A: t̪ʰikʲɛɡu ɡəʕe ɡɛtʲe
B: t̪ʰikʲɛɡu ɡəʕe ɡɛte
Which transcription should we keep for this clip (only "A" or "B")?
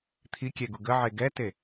B